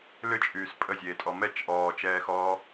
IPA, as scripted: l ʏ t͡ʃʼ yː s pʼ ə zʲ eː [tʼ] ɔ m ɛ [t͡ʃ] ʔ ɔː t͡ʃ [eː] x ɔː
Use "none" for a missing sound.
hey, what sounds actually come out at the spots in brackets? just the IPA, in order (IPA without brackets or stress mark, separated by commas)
tʼ, t͡ʃ, ɛː